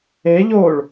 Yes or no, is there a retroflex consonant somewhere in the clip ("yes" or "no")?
yes